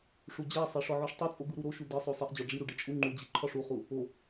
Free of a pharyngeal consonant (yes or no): no